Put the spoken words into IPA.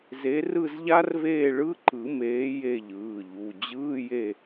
ze˨˦ rɯ˦˨zʎa˦˥rveː˦˨ ɭɯ˧˥˧ǃɯ˨˩˦meː˨˦ je˦˨ʎɯː˩˧˩ʎu˩˧˩ d͡ʑɯː˧˥˧je˦˨

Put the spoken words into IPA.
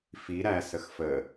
fi ɾæ səxfə

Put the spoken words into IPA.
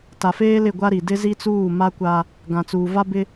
ta˨feː˦ lɪ˦˨ɡʷa˦ɾi˨ dɪ˦zi˦t͡suː˦˨ ma˦kʷa˦ | ɡã˨t͡suː˨ va˦bɪ˦

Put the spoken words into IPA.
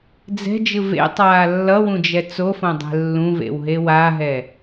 d͡zɛ̤d͡ʒɯ vḛtˤaː lːʌwũd͡ʒɛ t͡sofõdˤɛ̤ lːũvḛwɦe waɦɛ

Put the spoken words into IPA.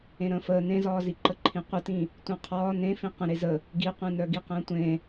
ẽɾə̃ːfəː nẽzɒːziǃə ǃʰĩqʷətĩ | tʷœ̃qʰɒː nẽfĩ qə̃ ɾezə | ɡiqʷẽnœɡi qə̃ːtʷẽ

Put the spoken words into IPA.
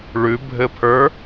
ɭʉbʱɘpʰə˞

